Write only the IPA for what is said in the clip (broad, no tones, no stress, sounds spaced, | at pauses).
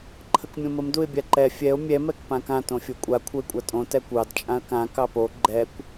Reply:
ǃʰ ə k mʲ õ m ə m d u ɪ̯ bʲ a ǃ ɛ fʲ ɛ ʊ̯ mʲ ɛ m ɛ k p ã k ã t õ fʲ o kʷʼ a kʷʰ ə ɪ̯ kʷʼ a tʼ õ t ɛ kʷ ɑ d t͡ʃʼ ã ə̯ k ã k ɑ p o ɡ͡ǃ ɛ kʷ